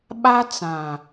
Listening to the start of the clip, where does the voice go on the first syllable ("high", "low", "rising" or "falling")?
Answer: high